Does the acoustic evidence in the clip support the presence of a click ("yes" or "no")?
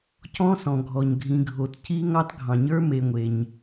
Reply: no